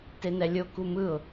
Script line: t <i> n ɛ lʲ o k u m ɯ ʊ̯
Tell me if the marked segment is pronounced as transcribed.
no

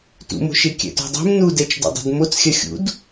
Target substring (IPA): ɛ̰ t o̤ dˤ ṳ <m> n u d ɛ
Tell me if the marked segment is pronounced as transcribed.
yes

